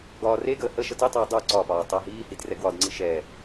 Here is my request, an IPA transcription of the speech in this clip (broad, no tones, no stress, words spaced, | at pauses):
ɡɒːreɡəː hə ʃətitˤəː dˤu ǀɒpɒː tˤəːɦiːhid rɛɡwɒdŋ͡ǀi ʃɛ